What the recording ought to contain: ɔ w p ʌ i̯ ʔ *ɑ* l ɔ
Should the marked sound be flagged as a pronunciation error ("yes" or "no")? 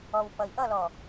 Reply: yes